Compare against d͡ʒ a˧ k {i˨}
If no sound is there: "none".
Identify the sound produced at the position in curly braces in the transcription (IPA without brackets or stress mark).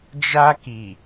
i˨